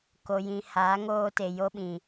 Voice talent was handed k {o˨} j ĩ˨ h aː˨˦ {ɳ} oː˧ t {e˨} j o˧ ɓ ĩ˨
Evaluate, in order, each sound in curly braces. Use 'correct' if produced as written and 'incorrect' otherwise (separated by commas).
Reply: correct, incorrect, correct